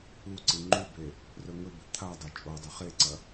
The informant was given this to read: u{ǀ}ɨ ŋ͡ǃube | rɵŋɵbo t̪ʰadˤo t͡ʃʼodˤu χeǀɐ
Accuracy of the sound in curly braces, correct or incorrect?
correct